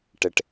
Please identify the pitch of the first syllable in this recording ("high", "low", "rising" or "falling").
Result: low